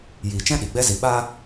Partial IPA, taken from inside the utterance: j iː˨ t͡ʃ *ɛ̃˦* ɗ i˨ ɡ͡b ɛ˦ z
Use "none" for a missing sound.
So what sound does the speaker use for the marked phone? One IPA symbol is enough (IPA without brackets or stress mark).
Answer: ɛ̃˦